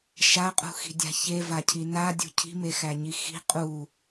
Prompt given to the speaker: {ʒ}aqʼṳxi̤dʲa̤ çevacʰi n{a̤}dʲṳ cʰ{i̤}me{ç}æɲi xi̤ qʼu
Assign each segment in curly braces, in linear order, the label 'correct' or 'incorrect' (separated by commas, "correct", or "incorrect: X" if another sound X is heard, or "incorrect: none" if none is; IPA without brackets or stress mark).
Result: incorrect: ʃ, incorrect: a, correct, incorrect: x